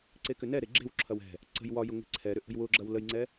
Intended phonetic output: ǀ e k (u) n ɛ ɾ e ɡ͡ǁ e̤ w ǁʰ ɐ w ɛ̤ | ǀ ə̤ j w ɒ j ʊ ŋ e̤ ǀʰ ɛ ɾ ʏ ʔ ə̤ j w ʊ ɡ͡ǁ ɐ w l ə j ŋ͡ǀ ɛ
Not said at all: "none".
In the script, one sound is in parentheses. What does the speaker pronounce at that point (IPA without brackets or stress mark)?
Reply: ʏ